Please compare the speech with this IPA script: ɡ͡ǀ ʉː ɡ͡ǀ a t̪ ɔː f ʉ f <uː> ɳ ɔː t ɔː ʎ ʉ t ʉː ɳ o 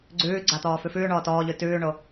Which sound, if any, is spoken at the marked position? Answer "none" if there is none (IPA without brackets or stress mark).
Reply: ʉː